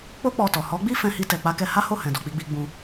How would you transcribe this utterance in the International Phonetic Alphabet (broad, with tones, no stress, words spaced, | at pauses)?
k͡po˦k͡pɔ˧tɔ˨ hɔ˨˦ɡ͡bi˦ fɛ̃˧hi˧tɛ˨ k͡pa˨˦kɛ˧ ha˦ho˦˨hɛ̃˨dɔ˨ k͡pi˧ɡ͡bi˧ ɡ͡bũ˧